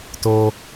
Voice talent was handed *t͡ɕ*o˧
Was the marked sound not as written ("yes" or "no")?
yes